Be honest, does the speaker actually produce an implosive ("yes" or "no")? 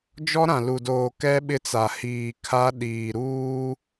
yes